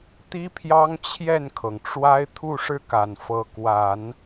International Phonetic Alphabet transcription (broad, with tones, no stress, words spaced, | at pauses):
t̪i˥pʰjɑ˥ŋ t͡ɕʰjɛ˥˩nkʰɤ˩ŋ ʈ͡ʂwa˥ɪ̯ t̪ʰu˥˧ʂɻ̩˥˩ka˨˩n fɤ˧˥kwa˨˩˦n